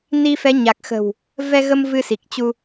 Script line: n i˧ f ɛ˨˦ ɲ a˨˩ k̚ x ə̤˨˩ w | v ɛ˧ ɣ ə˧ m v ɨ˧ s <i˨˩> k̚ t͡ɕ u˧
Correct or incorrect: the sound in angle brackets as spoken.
correct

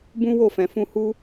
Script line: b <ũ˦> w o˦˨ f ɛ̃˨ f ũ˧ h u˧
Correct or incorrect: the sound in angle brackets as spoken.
correct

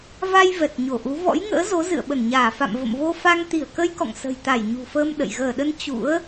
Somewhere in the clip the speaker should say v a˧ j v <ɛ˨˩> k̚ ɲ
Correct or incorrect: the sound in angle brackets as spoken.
correct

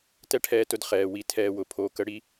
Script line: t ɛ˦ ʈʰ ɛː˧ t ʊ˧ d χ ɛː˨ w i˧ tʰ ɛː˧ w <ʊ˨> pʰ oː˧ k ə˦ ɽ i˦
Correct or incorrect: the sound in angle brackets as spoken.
correct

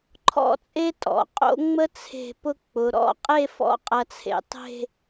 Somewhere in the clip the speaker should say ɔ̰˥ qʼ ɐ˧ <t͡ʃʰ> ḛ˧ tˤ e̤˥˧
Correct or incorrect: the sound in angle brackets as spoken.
incorrect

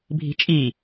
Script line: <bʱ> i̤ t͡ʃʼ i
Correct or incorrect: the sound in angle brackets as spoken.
correct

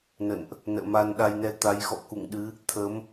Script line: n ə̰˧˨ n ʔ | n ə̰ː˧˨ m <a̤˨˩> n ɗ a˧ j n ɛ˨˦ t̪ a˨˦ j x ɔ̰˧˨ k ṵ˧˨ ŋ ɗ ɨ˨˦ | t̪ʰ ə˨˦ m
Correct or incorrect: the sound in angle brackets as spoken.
incorrect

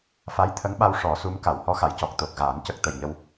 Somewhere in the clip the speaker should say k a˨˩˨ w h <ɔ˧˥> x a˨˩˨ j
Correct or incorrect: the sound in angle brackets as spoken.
correct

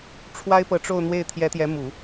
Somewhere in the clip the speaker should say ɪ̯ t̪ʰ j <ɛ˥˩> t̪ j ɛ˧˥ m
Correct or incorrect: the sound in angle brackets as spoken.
incorrect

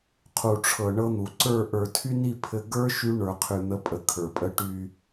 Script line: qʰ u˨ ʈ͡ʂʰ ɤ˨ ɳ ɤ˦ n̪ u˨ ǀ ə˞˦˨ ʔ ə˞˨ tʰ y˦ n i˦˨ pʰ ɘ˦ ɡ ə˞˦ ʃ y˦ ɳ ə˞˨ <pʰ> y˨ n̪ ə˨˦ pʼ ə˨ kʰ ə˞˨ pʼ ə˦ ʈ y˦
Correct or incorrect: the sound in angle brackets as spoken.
incorrect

